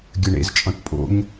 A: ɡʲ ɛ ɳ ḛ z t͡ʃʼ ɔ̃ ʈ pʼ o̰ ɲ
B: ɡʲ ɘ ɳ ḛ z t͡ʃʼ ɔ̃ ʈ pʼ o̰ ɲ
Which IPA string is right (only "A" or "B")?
B